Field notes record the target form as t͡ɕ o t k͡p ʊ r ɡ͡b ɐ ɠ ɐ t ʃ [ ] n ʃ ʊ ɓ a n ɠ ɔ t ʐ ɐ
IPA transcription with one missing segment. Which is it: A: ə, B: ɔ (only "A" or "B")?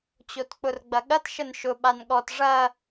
A